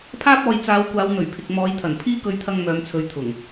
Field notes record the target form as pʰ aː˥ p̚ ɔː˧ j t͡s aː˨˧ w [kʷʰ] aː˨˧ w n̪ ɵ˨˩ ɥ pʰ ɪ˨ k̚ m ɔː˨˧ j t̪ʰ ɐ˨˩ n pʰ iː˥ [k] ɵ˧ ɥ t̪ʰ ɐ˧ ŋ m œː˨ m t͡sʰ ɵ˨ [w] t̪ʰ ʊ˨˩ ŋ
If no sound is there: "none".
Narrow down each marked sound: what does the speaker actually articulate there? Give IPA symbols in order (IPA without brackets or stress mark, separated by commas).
kʷ, k, ɥ